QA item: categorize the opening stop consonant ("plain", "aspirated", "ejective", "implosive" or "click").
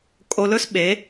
ejective